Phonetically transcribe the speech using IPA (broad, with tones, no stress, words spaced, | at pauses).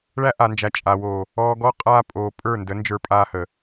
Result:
ɭæ˦ʔa˨nd͡ʒæ˨ t͡ʃʼa˨wo˨ | ɔː˦ ɡɔ˦ qʼaː˦pʼoː˨ pʼə˞˦˨ndə˨˦ nd͡ʒə˞˦pʼaː˦hə˨